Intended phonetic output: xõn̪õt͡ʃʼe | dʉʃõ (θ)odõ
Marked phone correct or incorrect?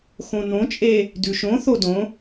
correct